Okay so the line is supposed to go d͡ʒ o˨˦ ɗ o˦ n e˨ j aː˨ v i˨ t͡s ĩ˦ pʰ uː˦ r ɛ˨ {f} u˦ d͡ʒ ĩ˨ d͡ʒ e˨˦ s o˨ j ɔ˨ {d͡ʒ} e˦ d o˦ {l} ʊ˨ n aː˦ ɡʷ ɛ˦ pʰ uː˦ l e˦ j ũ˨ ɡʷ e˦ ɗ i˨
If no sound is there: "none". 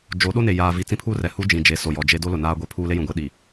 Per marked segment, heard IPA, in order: h, d͡ʒ, l

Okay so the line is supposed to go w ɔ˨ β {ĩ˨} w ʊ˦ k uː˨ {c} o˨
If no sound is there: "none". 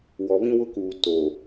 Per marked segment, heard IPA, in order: ĩ˦, t

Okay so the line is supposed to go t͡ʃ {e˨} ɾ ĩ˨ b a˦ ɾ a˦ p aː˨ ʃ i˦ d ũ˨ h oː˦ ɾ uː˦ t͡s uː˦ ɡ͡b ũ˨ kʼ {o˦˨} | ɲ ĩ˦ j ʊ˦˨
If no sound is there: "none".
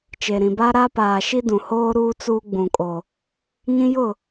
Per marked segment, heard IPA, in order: e˨, o˨

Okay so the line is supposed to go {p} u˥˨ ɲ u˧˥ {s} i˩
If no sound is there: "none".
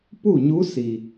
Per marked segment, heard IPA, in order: p, s

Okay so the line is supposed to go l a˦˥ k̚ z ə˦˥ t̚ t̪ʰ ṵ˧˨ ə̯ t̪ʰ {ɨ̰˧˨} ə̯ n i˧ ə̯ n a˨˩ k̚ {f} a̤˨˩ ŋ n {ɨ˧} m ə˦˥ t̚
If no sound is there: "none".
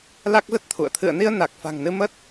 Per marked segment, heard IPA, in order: ɨ̰˧˨, f, ɨ˧

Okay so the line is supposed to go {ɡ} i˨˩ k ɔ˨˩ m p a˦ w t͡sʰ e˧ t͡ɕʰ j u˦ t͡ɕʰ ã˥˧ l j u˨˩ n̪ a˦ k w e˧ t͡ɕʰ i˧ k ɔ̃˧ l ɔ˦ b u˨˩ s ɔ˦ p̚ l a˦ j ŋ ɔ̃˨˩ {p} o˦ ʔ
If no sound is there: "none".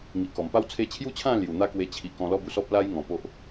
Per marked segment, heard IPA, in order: ŋ, p

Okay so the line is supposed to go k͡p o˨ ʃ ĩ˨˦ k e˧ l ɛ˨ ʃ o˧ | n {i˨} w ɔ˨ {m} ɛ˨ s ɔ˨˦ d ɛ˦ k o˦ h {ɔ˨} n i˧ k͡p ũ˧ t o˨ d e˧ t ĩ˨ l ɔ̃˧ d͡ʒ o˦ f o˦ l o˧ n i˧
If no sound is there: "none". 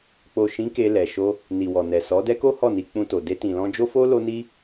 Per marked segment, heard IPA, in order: i˨, n, ɔ˦˨

